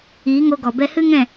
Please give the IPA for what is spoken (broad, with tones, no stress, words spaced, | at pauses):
iː˨˦ŋo˧ɡɔ˨ bɛ˧hɨ˦ŋɛ̃˦˨